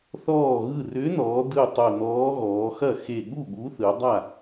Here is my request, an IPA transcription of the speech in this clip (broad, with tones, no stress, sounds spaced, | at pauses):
θ ɔː˧˩ ɣ ɯ˧˩ r ʏ˨˥ n ɔː˩˧ d ɯ˧˩ tˤ o˧˩ n ɔː˨˥ ɣ ɔː˩˧ x ɐ˥˩ x e˧˩ ɠ u˥˩ ɠ u˨˥ θ ɯ˩˧ dˤ a˥˩